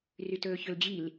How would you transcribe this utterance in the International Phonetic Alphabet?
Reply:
r y t ɵː ç ɵ l d͡ʑ i l

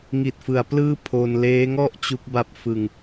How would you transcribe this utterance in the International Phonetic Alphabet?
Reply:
ŋ i˨˩ t̚ f ɯ˩˦ a̯ p l ɯː˥˩ pʰ o˧ n l eː˦˥ ŋ ɔ˥˩ ʔ t͡ɕ u˦˥ k̚ b a˦˥ p̚ f ɯ˧ ŋ

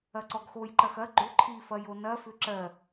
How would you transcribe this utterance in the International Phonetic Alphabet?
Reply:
ɐ ǀ ɔ ɡ x o j ǃ ɐ x ɐ ɡ͡ǃ ʏ ǃʰ i f ɐ j o n ɐ f ʏ ǁ ɜ

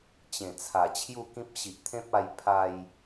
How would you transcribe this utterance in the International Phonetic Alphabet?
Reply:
t͡ɕ ẽ˨˩ t͡sʰ a˨˩ t͡ɕʰ j u˥˧ k ĩ˦ p̚ ɕ i˨ ʔ t̪ʰ ẽ˦ p̚ a˧ j pʰ a˧ j

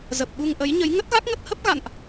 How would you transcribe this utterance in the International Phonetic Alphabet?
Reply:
z ə˨˩ p̚ ɓ u˧ ŋ ʔ ə˨˦ j ɲ ə˨˦ j ŋ ə˦˥ t̚ ɣ a˦˥ k̚ ŋ ə˦˥ t̚ h ə˦˥ p̚ ɣ a̰˧˨ n ʔ

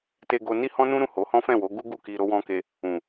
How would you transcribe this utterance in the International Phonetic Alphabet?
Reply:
t e˧ ɡ o˧ n i˦ h ɔ̃˦ n ũ˦ ɾ ũ˦˨ h o˨˦ h ɔ̃˦ f ɛ̃˦˨ w o˨˦ ɡ u˦ ɡ u˦˨ k i˧ ɾ o˦ w ɔ̃˦ k e˧ | ũ˨

